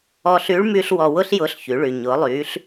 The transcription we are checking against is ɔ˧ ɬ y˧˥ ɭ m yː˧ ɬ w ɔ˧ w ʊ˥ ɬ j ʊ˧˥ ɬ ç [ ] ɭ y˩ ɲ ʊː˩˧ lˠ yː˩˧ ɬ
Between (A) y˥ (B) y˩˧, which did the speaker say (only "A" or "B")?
B